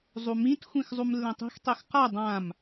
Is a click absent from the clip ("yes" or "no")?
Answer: yes